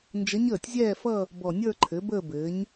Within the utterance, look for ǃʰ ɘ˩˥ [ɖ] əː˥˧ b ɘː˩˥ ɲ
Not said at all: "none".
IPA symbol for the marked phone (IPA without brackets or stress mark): b